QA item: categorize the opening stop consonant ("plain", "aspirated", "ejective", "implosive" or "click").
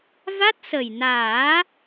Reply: plain